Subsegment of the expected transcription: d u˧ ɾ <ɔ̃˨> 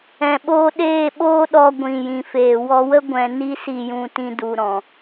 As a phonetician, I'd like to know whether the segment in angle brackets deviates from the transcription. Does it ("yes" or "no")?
no